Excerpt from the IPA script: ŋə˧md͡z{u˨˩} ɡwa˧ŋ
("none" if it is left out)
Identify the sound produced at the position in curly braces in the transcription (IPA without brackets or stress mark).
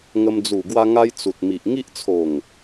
u˨˩